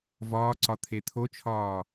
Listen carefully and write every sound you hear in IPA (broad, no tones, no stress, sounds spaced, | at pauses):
v ɒː ǀ ɒ t̪ʰ e t̪ʰ o t͡ʃʰ ɒː